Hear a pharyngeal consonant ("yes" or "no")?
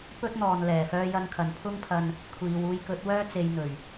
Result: no